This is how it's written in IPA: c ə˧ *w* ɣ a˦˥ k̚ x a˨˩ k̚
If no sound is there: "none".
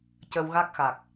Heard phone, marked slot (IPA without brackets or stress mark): w